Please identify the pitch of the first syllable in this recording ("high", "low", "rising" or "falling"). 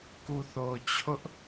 low